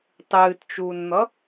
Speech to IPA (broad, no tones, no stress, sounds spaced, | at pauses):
tˤ ɨː t t͡ʃ uː n n̪ ʌ